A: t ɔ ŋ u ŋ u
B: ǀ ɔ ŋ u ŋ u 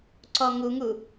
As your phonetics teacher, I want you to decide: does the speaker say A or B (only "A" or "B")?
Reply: B